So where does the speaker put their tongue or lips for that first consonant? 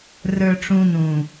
tongue tip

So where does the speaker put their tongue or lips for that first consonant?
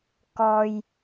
velum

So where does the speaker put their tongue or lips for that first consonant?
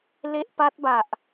tongue tip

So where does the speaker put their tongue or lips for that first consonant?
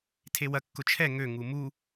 tongue tip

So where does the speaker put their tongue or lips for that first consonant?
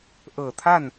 throat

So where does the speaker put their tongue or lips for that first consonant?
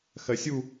velum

